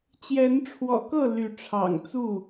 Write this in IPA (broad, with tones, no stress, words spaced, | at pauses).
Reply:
t͡ɕjɛ˨˦nʈ͡ʂʰwɔ̰˨˩kɤ˥˨ ly˨˦ʈ͡ʂʰɑ̰˨˩ŋt͡su˥˨